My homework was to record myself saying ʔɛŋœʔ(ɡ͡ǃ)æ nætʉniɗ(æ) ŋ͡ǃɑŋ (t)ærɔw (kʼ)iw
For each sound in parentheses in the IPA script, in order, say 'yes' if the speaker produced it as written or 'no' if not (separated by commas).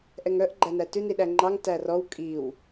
yes, yes, yes, yes